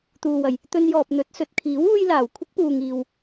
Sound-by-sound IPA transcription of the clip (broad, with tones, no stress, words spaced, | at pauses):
t̪uː˨wɐ˨˩j | t̪ɵ˧njɔː˨p̚n̪ɵ˨˥t̚ sɵ˨t̚kʰiː˨˥wuː˧jlaː˨˩w kʷʰɪ˥k̚puː˨ŋ iː˨w